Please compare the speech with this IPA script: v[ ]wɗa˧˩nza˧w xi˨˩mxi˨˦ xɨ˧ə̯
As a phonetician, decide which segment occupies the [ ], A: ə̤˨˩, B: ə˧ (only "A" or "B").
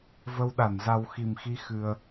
B